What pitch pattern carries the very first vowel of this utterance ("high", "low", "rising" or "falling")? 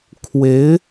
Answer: rising